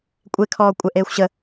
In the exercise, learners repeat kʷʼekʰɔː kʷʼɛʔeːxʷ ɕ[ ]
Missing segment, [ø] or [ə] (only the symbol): ə